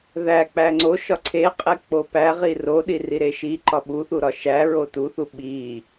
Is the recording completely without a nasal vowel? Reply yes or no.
yes